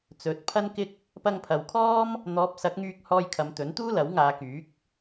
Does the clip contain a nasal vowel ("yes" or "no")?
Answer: no